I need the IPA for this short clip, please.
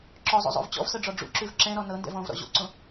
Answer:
ǁɔzˤo̰zˤo̰v t͡ɕɔ̰vsɤɖ͡ʐɔ ɖ͡ʐṵǁʉv ǁɛ̃ɾɔ nɤndɛ̰v ɔ̃vɾɔ̰ ʑo̰ǀõ

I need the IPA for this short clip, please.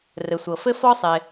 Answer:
rɘ˩sʷɤ˩fɘ˥ fɔ˥sˤɪ˩

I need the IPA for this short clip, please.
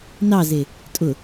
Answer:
nɑze | tʼʊ

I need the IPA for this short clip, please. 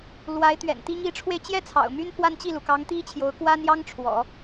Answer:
lwa˧˥ɪ̯t̪ɥɛ̰˨˩nt̪i˥ŋ i˧˥ʈ͡ʂʰwe˧ɪ̯t͡ɕjɛ˥ t͡sʰɑ̰˨˩ʊ̯my˥npʰwa˥˧n t͡ɕi˥˩lu˩kɑ˧˥ŋ t̪i˥t͡ɕʰjo˧˥ʊ̯kwa˥njɑ˥ŋ ʈ͡ʂʰwɔ̰˨˩˦

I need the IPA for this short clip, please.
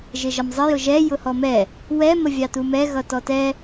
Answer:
ʒɪʒʌmzˤɪ jʊʒɛ jʊhɔmɛ | wɛ məvʲɑtumɛ ɣʌtɔtɛ

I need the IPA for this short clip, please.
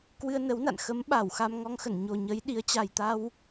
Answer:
kwɨ˧ə̯nə˨˦wna̰˧˨n xə˨˦mɓa˧˩w xa˧mŋɔ˧ŋxə˧˩n ɲo˨˩ɲə˨˦j ɗi˨˦ə̯t͡ɕa˨˩jt̪a˧w

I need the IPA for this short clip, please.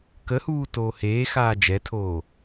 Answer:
kəhuː toːheːxaː d͡ʒɛtʰoː

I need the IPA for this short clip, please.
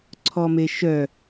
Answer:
ǀʰɔmeʃœ

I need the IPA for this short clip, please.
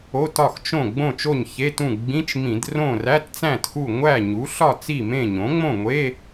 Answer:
o˧˥˧tɒ˥˨xt͡ʃõ˥˨ ɡ͡bõ˥˨t͡ʃo˥˨ɲçe˧˥˧tũ˥˨ ɡ͡bĩ˧˥˧t͡ʃmĩ˧˩˧d rõ˥˨ ræ˧˥˧tt͡sæ̃˥˨txu˥˨ ŋʷæ˥˨ ɲu˩˥ɬɒ˥˨ t͡si˥˨mẽ˥˨ɲõ˩˥ ŋ͡mõ˥˨ŋʷe˧˥˧

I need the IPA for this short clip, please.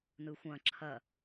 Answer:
nɯxʷɐ̃ ǁʰɐ

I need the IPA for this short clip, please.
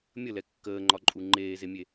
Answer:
mʲəlɛ kːəːŋ͡ǃɒǃʼu ŋ͡ǃeːzemʲe

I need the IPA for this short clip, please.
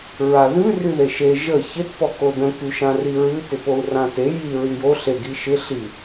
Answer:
ɹaðʉ ryðeʃe ʒə çɪt pɔkodə̃ kyʃãriɹʉ tɪpou̯rãte ji ɹyjo ɬe ɡiʃɪ ɬi

